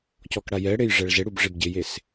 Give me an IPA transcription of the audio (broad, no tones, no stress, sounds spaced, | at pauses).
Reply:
c ɔ k ɽ a j ɛ ɽ e j ʐ ɛ ɭ z e ɽ u b ʐ e b ɟ ɪ j e s